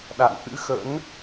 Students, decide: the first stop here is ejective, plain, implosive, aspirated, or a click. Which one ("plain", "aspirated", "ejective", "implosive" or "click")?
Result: implosive